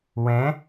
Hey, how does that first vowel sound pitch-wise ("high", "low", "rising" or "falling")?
rising